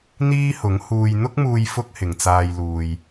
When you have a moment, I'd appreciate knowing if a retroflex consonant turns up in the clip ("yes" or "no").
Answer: no